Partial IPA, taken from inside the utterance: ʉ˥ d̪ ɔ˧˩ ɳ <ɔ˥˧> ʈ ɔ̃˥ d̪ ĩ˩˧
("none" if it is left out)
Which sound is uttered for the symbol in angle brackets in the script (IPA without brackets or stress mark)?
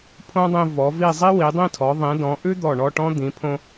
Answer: ɔ˥˧